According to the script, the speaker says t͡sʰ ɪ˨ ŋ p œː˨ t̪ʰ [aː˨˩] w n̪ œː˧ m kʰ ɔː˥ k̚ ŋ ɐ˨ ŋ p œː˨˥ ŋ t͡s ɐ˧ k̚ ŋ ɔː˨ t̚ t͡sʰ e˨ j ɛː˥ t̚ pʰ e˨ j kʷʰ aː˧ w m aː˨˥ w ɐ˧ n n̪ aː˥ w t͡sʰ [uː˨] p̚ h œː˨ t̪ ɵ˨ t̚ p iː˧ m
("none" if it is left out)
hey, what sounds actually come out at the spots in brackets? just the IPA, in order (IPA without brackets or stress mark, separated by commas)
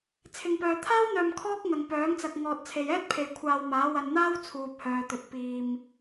aː˥, uː˨